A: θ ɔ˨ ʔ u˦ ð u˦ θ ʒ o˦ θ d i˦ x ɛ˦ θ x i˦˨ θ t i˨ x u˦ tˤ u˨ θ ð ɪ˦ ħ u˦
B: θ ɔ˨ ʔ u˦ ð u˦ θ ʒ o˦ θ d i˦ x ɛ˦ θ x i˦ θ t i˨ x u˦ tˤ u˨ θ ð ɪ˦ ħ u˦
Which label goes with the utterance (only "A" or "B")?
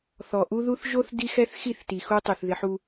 A